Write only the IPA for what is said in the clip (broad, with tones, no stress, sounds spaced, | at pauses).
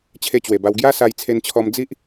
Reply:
t͡ɕʰ e˦ t͡ɕ w e˨˩ b a˧ w ɡ j a˦ s a˧ j t͡sʰ e˧ n t͡ɕʰ ɔ˧ m d͡z i˦ ʔ